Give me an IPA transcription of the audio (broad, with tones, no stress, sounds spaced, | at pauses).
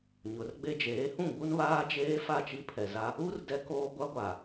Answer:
ɲ ʊ˨˦ r ɡ͡b e˦ d͡ʒ eː˨˦ h ũ˦˨ ɡ͡b u˦ n β aː˦ d͡ʒ eː˦ f a˦˨ t͡ʃ i˦ pʰ ɛ˨ z a˦ | u˦ r d ɛ˦ k oː˦ ɡʷ a˦ ɡʷ aː˨